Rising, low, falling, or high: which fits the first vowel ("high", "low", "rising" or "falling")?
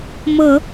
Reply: low